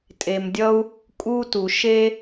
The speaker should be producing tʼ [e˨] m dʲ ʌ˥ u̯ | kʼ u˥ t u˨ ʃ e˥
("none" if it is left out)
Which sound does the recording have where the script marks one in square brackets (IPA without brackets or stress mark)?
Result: e˨